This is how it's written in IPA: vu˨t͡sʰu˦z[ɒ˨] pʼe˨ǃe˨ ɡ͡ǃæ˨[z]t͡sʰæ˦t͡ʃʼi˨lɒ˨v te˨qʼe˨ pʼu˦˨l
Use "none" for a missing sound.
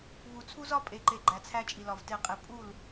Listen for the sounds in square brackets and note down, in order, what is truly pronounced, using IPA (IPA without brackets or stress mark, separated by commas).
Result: ɒ˦, none